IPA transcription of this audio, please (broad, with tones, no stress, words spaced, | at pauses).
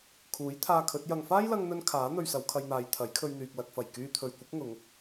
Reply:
kʰuː˨˥jt̪ʰaː˧ kʰɵ˨˥t̚ jɐ˨ŋfaː˥jlɐ˧ŋn̪ɵ˧n kʰaː˨˥ n̪ɵ˧ɥsɐ˨˧wkʰɐ˧jn̪aː˨˧j t̪ʰɐ˨˥jkʰɵ˧ɥn̪yː˨k̚ lɐ˨k̚fɐ˨˩j kyː˧t̪ʰɵ˨ɥkʷɪ˨˥k̚ ŋʊ˨˧ŋ